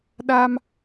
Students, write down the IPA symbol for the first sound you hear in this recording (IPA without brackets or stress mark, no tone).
ɗ